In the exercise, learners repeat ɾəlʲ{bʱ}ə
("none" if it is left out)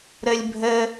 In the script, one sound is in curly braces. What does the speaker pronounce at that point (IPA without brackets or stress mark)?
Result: bʱ